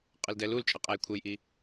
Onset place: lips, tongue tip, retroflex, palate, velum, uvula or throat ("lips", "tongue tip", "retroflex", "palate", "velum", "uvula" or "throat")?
uvula